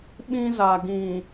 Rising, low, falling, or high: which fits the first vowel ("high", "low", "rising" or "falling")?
high